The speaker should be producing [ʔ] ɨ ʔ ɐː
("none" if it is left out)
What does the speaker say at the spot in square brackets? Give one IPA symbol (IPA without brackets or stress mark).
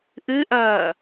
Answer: ʔ